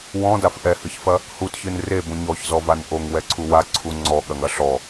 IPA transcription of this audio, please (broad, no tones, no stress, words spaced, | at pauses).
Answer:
wɔ̃daf ʔɛhɨçfɐ | hutçɨn rebũ ɲɔçzɔvan ʔoŋwɛǀʰu waǀʰu ŋ͡ǀɔɠɐŋɐ ɬɔ